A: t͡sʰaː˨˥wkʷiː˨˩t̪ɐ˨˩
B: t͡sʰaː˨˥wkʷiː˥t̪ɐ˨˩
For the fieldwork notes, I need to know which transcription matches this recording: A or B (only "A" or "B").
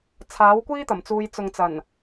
B